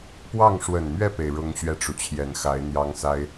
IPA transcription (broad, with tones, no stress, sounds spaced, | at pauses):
p w ɑ˥˩ ŋ ʂ w ə˨˩ n m ɥ ɛ˥˩ p e˩ ɪ̯ ɻ ʊ˥ ŋ ɕ ɥ ɛ˥˩ ʈ͡ʂ u˩ t͡ɕʰ j ɛ˨˩ n x a˧˥ ɪ̯ n̪ j ɑ˥ ŋ s a˥ ɪ̯